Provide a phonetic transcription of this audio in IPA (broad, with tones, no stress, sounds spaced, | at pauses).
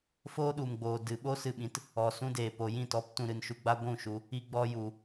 f oː˦ ɗ u˨ m ɡ͡b oː˨ d ɨ˨ ɓ o˦ s ɨ˧ ɓ ĩ˨˦ t | ɔ˨ s ũ˦ d eː˨ p o˨ j ĩ˦˨ t ɔ˨˦ p t ũ˧ ɾ ɨ˧ n ʃ u˧ ɡ͡b a˦ ɡʷ ũ˦˨ ʃ u˧ | i˧ ɡ͡b ɔ˧ j u˨